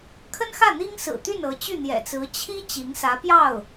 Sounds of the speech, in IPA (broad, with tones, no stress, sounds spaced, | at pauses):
kʰ ə˥ n x ä˥˩ n̪ i˥ ŋ s ɹ̩˨˩ t̪ y˥˩ n ɤ˧˥ t͡ɕ y˥˩ n̪ j ɛ̰˨˩ t͡s ɹ̩˧˥ t͡ɕʰ i˥ t͡ɕ i˧˥ ŋ s ä˧˥ p j ɑ˥˩ ʊ̯